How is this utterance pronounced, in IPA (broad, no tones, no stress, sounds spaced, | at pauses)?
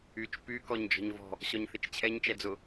y t͡ʃ p y k ɔ ɲ d͡ʒ ɔ̤ ɲ v ɔ̤ | ɕ ɔ ɲ θ ɪ t͡ʃ t͡ɕʰ ɛ ɲ t͡ʃ ɛ d͡z ʊ